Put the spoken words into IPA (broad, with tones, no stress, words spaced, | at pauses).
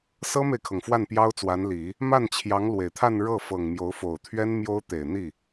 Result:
sɤ˥me˨ɪ̯kʰɤ˩ŋ fwa˥˩npjɑ˥ʊ̯t͡swa˧˥nli˨˩˦ | ma˥˩nt͡ɕʰjɑ˧˥ŋ lwe˨˩ɪ̯t̪ʰa˥˧n ɻɤ˥˩ fɤ˨˩ŋmjo˧˥ʊ̯fo˨˩ʊ̯ t̪ʰɥɛ˥nmjo˥ʊ̯ t̪e˨˩ɪ̯n̪i˥˩